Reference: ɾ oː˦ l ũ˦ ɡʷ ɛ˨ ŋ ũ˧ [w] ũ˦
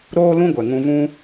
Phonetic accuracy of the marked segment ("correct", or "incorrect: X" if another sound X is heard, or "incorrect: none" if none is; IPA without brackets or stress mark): incorrect: v